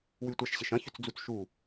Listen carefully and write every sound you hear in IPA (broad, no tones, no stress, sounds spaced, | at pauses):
w y tʷ a ʃ ɕ ɪ ʃ ɐ̃ ç ʏ t͡s d͡z u t͡s ʃ u